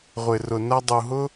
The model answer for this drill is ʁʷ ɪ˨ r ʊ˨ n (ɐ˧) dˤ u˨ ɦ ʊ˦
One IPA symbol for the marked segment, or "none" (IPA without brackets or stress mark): ɐ˧